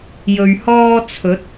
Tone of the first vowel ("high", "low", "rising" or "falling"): low